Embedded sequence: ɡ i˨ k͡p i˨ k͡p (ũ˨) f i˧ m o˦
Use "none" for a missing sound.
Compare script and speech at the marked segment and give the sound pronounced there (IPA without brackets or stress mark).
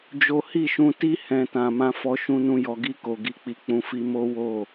ũ˨